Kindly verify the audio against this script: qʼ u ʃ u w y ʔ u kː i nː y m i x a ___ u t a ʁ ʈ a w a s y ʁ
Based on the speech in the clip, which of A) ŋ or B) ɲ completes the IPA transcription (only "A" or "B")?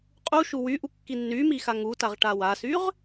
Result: A